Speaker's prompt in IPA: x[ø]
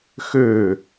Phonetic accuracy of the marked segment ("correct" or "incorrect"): correct